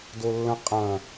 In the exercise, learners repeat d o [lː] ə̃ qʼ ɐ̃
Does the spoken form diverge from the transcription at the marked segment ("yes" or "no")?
no